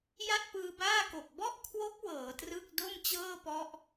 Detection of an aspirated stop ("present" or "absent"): present